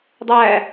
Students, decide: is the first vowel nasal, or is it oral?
oral